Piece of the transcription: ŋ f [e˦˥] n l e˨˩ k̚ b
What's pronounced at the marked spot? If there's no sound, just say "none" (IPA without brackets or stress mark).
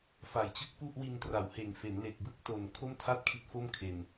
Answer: e˩˦